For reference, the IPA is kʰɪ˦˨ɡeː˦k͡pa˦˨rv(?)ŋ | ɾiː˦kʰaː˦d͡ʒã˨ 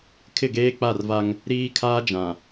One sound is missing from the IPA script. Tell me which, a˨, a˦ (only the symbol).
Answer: a˦